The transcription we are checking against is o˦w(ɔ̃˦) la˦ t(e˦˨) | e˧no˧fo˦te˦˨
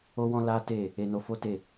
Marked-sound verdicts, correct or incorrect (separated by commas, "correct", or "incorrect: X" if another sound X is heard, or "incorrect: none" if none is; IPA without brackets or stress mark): correct, correct